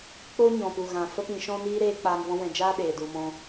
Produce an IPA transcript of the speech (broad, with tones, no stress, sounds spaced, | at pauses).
k͡p o˧ ɲ ɔ̃˨ p u˨ ɣ ã˨ f ə˦ p ĩ˧ ʃ ɔ̃˦ n iː˦ ɾ eː˦ k͡p aː˧ ŋ v ɔ̃˦ w ɛ̃˧ d͡ʒ aː˦ ɗ eː˨ d u˧ m ɔ̃˦